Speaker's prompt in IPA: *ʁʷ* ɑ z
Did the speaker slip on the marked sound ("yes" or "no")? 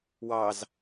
yes